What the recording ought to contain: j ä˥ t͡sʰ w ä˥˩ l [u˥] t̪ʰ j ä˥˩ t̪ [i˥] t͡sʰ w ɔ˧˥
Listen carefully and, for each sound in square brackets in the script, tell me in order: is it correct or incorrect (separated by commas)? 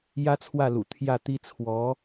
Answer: incorrect, correct